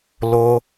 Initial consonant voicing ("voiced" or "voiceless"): voiced